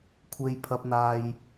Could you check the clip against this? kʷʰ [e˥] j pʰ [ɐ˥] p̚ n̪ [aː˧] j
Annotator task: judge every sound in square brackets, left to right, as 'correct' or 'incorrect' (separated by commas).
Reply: incorrect, incorrect, correct